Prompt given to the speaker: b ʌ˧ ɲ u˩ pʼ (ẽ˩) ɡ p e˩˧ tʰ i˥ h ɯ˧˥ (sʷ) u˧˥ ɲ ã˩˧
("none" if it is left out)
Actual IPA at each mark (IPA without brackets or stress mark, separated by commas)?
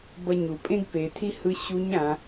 ẽ˥, ɕ